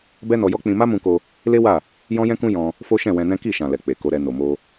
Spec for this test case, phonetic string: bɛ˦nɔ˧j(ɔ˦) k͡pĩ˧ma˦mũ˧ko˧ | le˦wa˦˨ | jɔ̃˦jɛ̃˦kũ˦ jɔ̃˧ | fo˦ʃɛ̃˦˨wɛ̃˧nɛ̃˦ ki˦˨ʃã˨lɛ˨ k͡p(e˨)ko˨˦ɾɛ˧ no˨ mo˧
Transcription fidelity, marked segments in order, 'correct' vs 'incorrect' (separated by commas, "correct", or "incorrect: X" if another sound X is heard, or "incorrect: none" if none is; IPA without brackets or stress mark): correct, correct